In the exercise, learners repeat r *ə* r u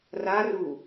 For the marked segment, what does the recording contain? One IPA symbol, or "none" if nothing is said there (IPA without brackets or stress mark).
a